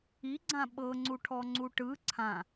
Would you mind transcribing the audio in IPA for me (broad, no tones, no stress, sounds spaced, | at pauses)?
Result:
i ɡ͡ǀ ã ɓ ɤ ŋ͡ǀ u ʈʰ ɔ ŋ͡ǀ u ʈ ɯ ǀʰ ã